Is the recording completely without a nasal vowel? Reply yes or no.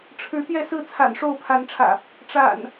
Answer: yes